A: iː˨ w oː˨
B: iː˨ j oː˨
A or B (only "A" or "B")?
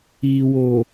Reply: A